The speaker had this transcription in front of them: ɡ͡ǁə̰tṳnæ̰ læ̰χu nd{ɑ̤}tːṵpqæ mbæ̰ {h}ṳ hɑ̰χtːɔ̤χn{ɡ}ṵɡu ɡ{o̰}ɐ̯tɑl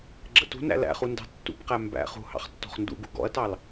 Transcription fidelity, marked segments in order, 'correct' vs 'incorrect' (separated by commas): correct, incorrect, incorrect, incorrect